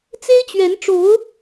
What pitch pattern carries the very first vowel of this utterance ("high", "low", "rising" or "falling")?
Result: high